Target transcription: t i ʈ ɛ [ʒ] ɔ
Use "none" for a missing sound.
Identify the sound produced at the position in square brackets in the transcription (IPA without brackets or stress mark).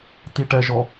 ʒ